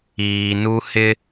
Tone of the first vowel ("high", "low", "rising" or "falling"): low